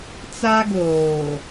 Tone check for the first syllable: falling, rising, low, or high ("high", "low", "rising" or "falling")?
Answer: high